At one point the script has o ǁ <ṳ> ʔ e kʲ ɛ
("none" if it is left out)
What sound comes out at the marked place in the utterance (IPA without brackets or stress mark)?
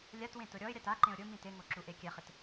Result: u